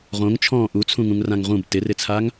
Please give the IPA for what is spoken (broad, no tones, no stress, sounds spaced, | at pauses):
ʁ õ ŋ t͡ʃʰ ɔ̃ː ʔ u t͡sʰ ũ ŋ ũ ŋ r ã ŋ ʁ ũ b t ɪ r ɪ t͡sʰ a ŋ